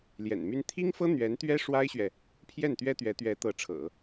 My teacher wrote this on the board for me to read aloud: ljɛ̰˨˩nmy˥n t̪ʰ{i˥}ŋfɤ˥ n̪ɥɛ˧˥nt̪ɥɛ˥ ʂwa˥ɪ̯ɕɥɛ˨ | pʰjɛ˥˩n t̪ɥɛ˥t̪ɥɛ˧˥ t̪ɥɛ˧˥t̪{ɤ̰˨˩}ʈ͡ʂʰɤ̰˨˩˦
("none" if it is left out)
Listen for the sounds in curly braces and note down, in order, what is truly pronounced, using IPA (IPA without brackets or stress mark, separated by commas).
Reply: i˥, ɤ˧˥